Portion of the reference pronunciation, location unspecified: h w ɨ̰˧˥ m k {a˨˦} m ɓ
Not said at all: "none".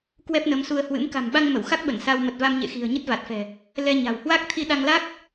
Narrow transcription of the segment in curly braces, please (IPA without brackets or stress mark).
a̤˨˩